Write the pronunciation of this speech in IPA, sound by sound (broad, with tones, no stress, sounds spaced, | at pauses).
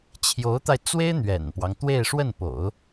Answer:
t͡ɕʰ j o˧˥ ʊ̯ t̪ a˧ ɪ̯ t͡s w e˥ ɪ̯ n̪ ɥ ɛ̰˨˩ n p w ɑ˦ ŋ t̪ w e˥˧ ɪ̯ ʂ w ə˥˩ n p o̰˨˩˦ ʊ̯